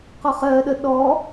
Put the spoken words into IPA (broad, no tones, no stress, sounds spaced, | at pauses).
q ɔ χ ɜ ɗ ə ɗ ɔ